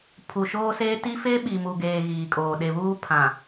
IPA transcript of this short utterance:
pʰu˨ʃoː˦seː˦ ti˦ fe˦ ɓi˨mu˨ɡeː˨ ɣiː˨kʼoː˨ ɗe˨βuː˦pʰã˨

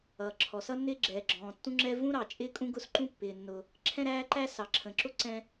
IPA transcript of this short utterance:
ʌː˩ ǁʰɔ˩sʌ˥nːɪː˥ ɡ͡ǁɛː˩ɡ͡ǁɔ̃ː˩ tːũ˥ŋ͡ǁɛ˥ vũ˥ɾɑ˩ t͡ʃʼɪː˥kʼũ˥ɡʊ˥s ǃũ˥pːɪː˩nːʊ˩ | ǁʰɛ̃˥ɾæː˥ ǃæ˥ sɑ˩ǁʰə̃˩ǁʊ˥ ǀɛ̃˥

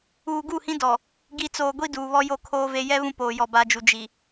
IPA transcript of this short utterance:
uː˨ɡu˦˨hĩ˦ dɔ˨ | ɡi˨t͡soː˨ ɡʷi˦duː˨βɔ˦ jo˦˨kʰoː˦ve˦ jɛ˦ βũ˦poː˨jɔ˨ ba˨d͡ʒu˨ d͡ʒi˨

